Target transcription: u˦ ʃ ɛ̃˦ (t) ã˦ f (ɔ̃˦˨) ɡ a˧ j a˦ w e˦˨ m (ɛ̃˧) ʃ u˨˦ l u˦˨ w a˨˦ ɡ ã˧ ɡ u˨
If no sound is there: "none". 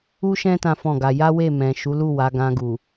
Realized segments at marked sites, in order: t, ɔ̃˦˨, ɛ̃˨

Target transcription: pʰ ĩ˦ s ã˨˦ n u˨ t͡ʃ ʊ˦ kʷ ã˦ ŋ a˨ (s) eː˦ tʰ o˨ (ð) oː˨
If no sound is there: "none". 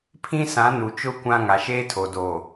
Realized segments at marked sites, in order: ʃ, d

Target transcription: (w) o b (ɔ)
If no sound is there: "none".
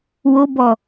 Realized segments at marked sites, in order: w, ɔ

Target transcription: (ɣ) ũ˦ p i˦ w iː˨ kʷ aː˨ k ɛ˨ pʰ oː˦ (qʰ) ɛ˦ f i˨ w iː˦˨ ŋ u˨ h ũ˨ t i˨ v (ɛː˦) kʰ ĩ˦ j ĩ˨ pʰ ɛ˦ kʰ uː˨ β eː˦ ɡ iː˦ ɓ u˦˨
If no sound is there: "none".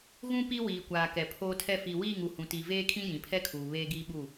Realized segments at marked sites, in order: ɣ, tʰ, eː˦

